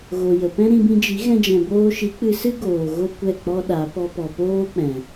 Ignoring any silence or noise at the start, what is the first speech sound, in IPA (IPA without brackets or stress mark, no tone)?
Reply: ɣ